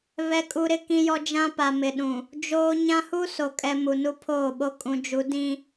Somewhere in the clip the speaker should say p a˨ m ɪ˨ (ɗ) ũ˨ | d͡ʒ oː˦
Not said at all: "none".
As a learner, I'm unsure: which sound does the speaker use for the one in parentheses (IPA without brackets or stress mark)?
ɗ